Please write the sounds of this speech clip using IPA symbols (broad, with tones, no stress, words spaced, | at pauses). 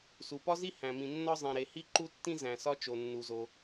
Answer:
su˩pɒ˥zi˥ hæ̃˩mĩ˩nːɒ˥ zˤĩ˩ɾe˩hi˥ ǃu˥tːĩ˥ zæ̃˩sɒ˥ t͡ʃo˩nːu˩zo˩